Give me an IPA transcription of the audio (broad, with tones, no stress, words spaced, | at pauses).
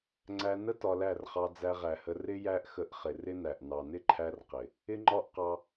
ŋ͡ǀæ˧ nə˦ tɒ˧læ˦˨rχɑ˧ d͡zæ˧ʁæ˨hə˧ rɪ˦ jæ˦ʔxə˧ʔχɪ˨ rɪ˦næ˨ʔ nɑ˨nɪ˦ǃʰæ˧r qɪ˨ | ɪ˦ŋ͡ǃɒ˦ʔ qɑ˧